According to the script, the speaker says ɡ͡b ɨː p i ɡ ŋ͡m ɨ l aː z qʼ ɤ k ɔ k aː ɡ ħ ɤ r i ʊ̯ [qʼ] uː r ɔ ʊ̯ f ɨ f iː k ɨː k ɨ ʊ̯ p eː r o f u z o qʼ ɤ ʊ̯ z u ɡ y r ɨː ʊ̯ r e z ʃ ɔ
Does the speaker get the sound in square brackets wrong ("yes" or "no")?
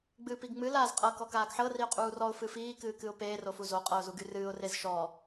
no